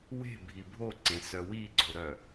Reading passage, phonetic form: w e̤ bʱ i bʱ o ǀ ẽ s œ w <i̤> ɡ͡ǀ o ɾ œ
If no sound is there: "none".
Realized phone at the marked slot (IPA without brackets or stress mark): i